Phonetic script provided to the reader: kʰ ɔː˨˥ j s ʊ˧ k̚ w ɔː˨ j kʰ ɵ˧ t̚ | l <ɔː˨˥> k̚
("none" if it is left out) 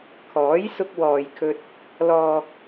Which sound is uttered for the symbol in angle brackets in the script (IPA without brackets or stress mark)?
ɔː˨